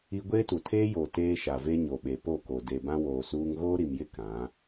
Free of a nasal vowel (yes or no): no